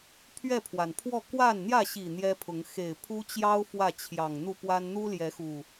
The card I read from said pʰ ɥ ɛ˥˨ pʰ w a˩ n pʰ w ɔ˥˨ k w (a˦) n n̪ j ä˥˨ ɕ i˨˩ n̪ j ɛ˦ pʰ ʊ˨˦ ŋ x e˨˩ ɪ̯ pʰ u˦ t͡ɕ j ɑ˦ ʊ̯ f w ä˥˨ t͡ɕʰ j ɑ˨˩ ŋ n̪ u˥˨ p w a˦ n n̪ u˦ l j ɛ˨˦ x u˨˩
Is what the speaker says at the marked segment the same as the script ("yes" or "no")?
no